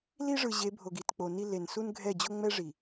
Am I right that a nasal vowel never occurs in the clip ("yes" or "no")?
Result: yes